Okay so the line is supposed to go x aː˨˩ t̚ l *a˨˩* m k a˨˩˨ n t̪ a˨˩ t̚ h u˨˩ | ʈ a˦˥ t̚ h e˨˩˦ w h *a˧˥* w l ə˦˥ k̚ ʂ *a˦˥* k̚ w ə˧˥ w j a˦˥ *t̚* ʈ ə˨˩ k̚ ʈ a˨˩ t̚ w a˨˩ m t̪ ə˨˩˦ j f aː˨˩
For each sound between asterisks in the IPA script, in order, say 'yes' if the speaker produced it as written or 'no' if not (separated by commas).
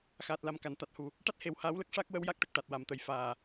yes, no, yes, no